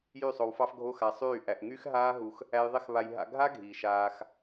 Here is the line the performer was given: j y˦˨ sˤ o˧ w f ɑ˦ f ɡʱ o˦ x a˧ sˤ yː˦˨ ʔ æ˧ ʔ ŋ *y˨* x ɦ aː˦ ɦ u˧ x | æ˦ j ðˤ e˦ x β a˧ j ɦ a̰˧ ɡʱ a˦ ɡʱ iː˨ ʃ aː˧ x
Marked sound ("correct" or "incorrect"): incorrect